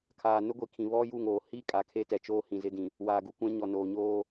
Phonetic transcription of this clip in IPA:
kʰ aː˨ n ʊ˦ ɡʷ i˨ kʰ ĩ˨ β ɔ˦ j u˦˨ ŋ oː˨ h i˦˨ kʼ a˨ kʰ e˦ t ɛ˨ t͡ʃ oː˦ h ĩ˨ z ɪ˦ d ĩ˨ | w aː˨ ɡ u˨ kʷ ã˦ ɲ ɔ˨ n oː˨ ɲ oː˦

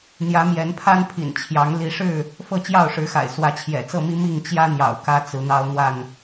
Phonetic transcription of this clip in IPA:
n̪ j ä˨˦ m j ɛ˨˦ n pʰ a˦ n pʰ ḭ˨˩ n t͡ɕʰ j ɑ˨˦ ŋ l i˨˦ ʂ ɻ̩˥˨ | f ɤ˥˨ t͡ɕ j ɑ˥˨ ʊ̯ ʂ ɻ̩˨˦ x a̰˨˩ ɪ̯ s w ä˨˦ t͡ɕʰ j ɛ̰˨˩ t͡s ɤ˥˨ m i˦ m i˥˨ ŋ t͡ɕ j ä˦ n̪ j ɑ̰˨˩ ʊ̯ k ä˦ t͡s ɹ̩˨˦ n̪ ɑ˦ ʊ̯ n̪ w a˥˨ n

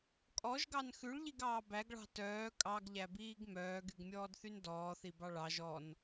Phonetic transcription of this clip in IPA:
kʼ ɔ ʒ ɡ ɑ n x ʉ ɭ ʎ i ɡ ɑː b æ ɡ ɭ ɑ̤ t œː kʼ ɑ ɡ ʎ æ b iː ɡ m œː ɡ y ɡ mʲ ɔː d θ y n d ɔː θ i b ɑ ɭ ɑ ʒ ɔ n

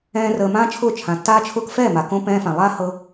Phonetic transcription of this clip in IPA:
ɛ̃ː˦ r əː˧ m ãː˦ t͡ʃʰ ʊː˦˨ t͡ʃʰ ã˨ tː aː˦ t͡ʃʰ ʊː˧ k f ɛː˦˨ m a˨ k õ˧ p ɛ̃ː˧ f ã˨ lˠ aː˦ h ɤ˧

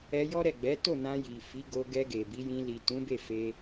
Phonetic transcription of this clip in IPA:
ɛ˧ j ɔ˦ ɾ ɛ˦˨ ɡ͡b ɛ˨˦ t o˦˨ n ã˧ j i˨ f i˨˦ ɡ o˧ ɡ ɛ˧ ɡ e˨ b i˨˦ j ĩ˧ l i˨ t ũ˨˦ b e˦˨ f e˧

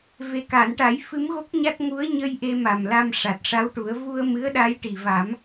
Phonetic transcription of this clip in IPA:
v e˨˩ k a˨˩˨ n ʈ a˨˩˦ j f ɨ˧˥ m ɣ o˦˥ k̚ ɲ a˦˥ t̚ ŋ u˧˥ ə̯ ɲ ə˧ j ʔ e˧ m a˨˩ m l a˧ m ʂ a˨˩ t̚ ʂ a˧˥ w ʈ u˨˩˦ ə̯ v u˧ ə̯ m ɨ˧˥ ə̯ ɗ a˧˥ j ʈ i˨˩ v a˨˩˦ m

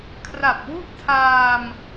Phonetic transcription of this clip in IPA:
kʰ r a˨˩ p̚ w u˥˩ ʔ tʰ aː˧ m

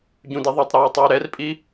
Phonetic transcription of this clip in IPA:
ɟ ũ d i ðˤ e tˤ ɾ eː u̯ tˤ u y̯ ɾ ɛ r pʼ i

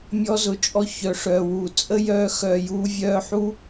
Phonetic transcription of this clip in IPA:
mʲ ɔ˧ z ʊ˨ t͡ʃʼ ɔ˧ ç œ˨ ʂ œː˨ w u˨ t͡sʼ ə˦ j œː˧ x œː˨ j uː˧ vʲ œː˧ ħ u˦

